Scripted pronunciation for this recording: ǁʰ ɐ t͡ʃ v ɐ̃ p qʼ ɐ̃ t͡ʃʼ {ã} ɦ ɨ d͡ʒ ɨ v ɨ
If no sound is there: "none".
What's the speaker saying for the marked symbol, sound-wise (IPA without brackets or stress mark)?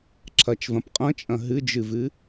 ɐ̃